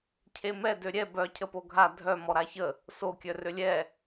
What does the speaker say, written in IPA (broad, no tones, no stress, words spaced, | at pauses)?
cʰemɛ døɾʲɛ bœ cʰəpoɡʱa dʱœ mɔɾaçə | so kʲœrølʲɛ